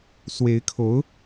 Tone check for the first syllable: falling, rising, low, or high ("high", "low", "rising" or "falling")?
rising